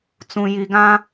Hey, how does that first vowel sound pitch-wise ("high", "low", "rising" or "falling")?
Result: low